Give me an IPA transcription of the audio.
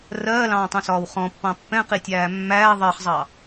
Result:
r ɜː l ɑ̃ː tˤ ũ s ɒː w χ ɔ̃ pː ɑ̃ pː ɛ̃ q i tʲ æː mː æː ðˤ ɜ χ zˤ ɑ

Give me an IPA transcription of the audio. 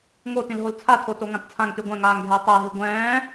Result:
ŋ o t ĩ l ɦ o l t͡sʰ a tʰ o t o ŋ ã t t͡sʰ ã ŋ t y ɡʷ ɛ̃ ŋ aː ŋ ɡʱ ɛ e̯ tˤ ɛ e̯ ɦ i ɡʷ ɛ̃ː

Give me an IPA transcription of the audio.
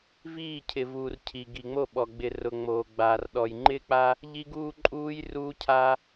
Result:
v iː˦˨ cʰ ɪ˨ v uː˨ r cʰ i˨ ɡ i˨ ŋ͡m o˦˨ ɓ ɔ˨ ɡ͡b ɪ˨ r ʊ˨ ŋ͡m oː˨ ɡ͡b aː˨ r ɗ ɔ˨ j ŋ͡ǃ ɪː˦ k͡p a˦ | ʎ i˦ ɡ uː˦ ǃʼ uː˦ j r uː˦ cʰ a˦

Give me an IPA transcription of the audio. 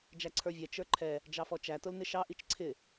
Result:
d͡ʒ æ ǀʰ ə˞ vʲ ɛ t͡ʃ ə˞ ǃʰ ɛ | d͡ʒ ɑ f ɔ t͡ʃ æ t ʊ l n ɪ ʃ ɑ ʔ i t͡ʃ ǀʰ ɪ

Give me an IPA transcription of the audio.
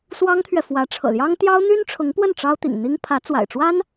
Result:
s w ɑ˥ ŋ t̪ʰ ɥ ɛ˨ f w ä˧˥ ʈ͡ʂʰ ɤ̰˨˩ l j ɑ˥ ŋ t̪ j ɑ˥ ʊ̯ n̪ y˥ n ʈ͡ʂʰ ʊ˧˥ ŋ p w ə˥˩ n ʈ͡ʂ ɑ˥ ʊ̯ t̪ ḭ˨˩ ŋ n̪ i˥ ŋ pʰ ä˧˥ t͡s w a̰˨˩ ɪ̯ ʈ͡ʂ w a˥ n

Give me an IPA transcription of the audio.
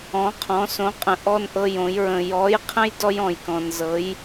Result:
ɔ̃˧˥ qʰ ɔ̃˧˥ s õ˧˥ qʼ ə̃˧ ʔ ɔ˥ n ʔ ɤ˥ j õ˧˥ j ɹ ə̃˧ j ɔ˧˥ j qʰ ə̃˥ j d ɔ˥ j ɔ̃˧ j k ɔ̃˧ n z ɤ˧˥ j

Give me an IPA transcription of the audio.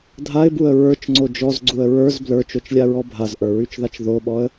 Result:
dʱ a ɪ̯ b u ə̯ ɹ ə˞ t͡ʃ ŋ͡ǀ o d͡ʒ ɔ z ɡ͡ǀ u ə̯ ɹ ə˞ z b l ə˞ t͡ʃ o t͡ʃ lʲ a ɹ ɔ bʱ a z ʔ ə˞ ɹ y t͡ʃ ð a t͡ʃ ð o ɓ ɔ ə̯

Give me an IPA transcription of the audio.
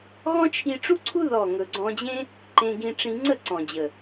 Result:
ɣ ɔ̃˦ t͡ʃʰ i˧ ʈ͡ʂ u˦ ǀʰ u˦ ð ɔ˦˨ ŋ ɵ˨ ɡ͡ǀ ɔ̃˧ d͡ʑ ẽ˦ | ǃ ẽ˧ ɡ ĩ˧ ʈ͡ʂ ĩ˧ ŋ͡ǀ ə˦˨ ǀ ɔ̃˨ d͡ʑ ə˨

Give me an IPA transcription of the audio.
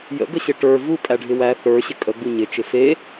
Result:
j ə̰ ɡ ə ɕ ɪ ʈ ə˞ v u kʼ æ ɖʱ ɪ w æ θ ə˞ ɕ ɪ kʼ ə ɡ͡b u ɲ ɪ t͡ʃ ɪ f e

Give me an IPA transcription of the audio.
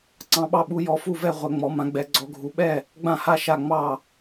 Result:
ǀ ɑ̃˧˥ ɓ ɑ˥˧ ɓ u˧˥ j ɔ˧˥ f u˥˧ v ɛ˥˧ ʁʷ ɛ˧˥ ŋ͡m ɔ˧˥ m ã˧˥ ɡ͡b ɛ˧˥ ɡ͡ǀ ɔ˧˥ ɡʱ u˧˥ ɓ ɛ˥˧ | ɡ͡b ã˥˧ h a˥˧ ʃ a˥˧ ŋ͡m ɑ˥˧

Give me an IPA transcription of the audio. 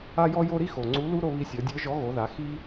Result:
a˥ j ɔ˥ j o˥ ɾ i˥ x o˩ ŋ͡ǀ u˧˥ l u˥ ɾ o˧ β i˧ sʲ ɔ˩˧ dʲ ə˞˧˥ ʒ ɔ˧˥ ɣ o˩˧ ð a˩˧ x i˥

